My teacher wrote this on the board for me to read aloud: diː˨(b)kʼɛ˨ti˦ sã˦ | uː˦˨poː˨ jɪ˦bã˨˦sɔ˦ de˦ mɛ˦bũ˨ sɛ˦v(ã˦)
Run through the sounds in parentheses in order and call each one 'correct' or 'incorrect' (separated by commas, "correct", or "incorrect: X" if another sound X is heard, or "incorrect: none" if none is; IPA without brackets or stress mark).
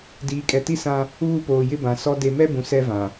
incorrect: none, incorrect: ã˨